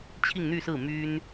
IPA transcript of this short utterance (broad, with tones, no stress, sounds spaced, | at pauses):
t͡ɕʰ i˥˧ ŋ n̪ y˥˧ s ɹ̩˥˩ m y˥ n